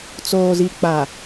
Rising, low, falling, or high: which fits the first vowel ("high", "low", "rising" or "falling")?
low